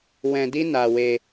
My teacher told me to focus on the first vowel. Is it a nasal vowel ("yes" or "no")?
yes